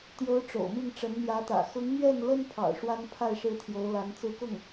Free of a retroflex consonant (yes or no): no